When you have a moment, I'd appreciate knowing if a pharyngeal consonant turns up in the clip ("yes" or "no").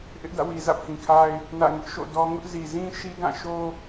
no